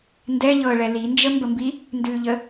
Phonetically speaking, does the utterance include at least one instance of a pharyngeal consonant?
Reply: no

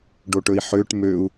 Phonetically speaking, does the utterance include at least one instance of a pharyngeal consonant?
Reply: yes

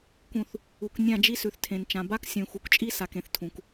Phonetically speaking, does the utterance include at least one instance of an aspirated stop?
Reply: yes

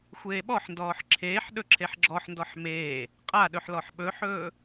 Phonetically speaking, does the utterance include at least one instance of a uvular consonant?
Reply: yes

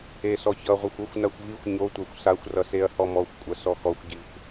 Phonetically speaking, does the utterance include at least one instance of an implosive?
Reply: no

